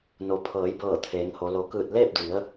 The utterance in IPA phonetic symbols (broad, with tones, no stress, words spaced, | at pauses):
no˩˧pʰɤː˩˧jbɤː˧˩ t̪ʰeː˩˧ŋho˩˧ lo˩kɯː˧˩t̚ leː˥˨p̚di˩˧ə̯